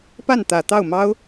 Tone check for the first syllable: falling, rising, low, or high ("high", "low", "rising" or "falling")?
falling